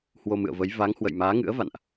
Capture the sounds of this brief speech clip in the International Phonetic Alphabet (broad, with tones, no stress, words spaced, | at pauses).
hwo˧mɨ̰˧˨ə̯və˨˦j va˨˦ŋ hwə̰˧˨jmaː˨˦ŋɨ̰˧˥ə̯ va̰˧˨nʔ